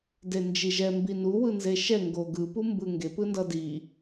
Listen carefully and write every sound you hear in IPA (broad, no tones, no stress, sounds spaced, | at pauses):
d e n d͡ʒ i ʒ ɛ m b i n u w ɯ n z e ʃ ɛ ŋ ɡ o ɡ ɯ p u m b ɯ ŋ ɡ e p ɯ n d ʌ d i